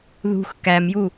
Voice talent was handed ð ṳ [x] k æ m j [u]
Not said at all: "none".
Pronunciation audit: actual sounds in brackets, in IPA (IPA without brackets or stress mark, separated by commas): x, u